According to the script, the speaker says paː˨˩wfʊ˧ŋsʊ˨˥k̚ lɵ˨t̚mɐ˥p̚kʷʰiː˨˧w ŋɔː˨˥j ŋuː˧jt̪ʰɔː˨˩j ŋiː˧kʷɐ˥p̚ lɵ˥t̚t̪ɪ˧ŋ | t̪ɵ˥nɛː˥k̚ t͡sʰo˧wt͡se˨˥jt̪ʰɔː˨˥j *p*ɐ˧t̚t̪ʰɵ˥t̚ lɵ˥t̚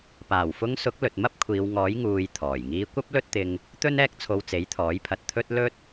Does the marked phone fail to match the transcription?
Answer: yes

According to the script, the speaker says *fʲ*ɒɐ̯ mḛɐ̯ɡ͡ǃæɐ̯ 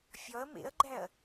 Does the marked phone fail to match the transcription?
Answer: no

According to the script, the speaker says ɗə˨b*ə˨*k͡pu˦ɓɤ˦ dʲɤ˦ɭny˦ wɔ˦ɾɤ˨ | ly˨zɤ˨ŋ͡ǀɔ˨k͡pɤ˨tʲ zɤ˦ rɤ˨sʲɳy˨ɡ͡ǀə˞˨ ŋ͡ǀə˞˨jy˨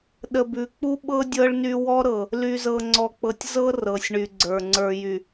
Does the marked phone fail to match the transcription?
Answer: yes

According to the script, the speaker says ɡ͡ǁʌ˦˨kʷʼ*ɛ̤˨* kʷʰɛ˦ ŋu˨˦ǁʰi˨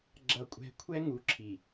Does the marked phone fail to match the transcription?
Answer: yes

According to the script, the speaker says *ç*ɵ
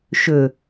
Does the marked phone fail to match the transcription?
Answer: yes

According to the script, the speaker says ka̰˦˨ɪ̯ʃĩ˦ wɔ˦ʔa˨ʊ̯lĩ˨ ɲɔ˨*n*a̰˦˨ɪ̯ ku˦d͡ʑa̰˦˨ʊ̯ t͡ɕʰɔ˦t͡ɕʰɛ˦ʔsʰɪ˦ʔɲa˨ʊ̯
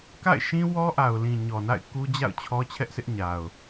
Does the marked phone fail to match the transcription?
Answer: no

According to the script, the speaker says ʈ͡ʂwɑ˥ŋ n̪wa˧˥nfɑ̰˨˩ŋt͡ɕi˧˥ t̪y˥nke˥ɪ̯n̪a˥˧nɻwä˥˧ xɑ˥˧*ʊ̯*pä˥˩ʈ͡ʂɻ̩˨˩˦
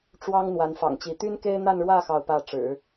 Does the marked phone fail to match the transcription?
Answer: no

